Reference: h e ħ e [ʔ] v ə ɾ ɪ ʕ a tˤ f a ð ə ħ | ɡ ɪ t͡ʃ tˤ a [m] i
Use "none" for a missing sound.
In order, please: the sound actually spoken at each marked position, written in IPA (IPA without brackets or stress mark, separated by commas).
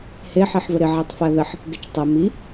ħ, m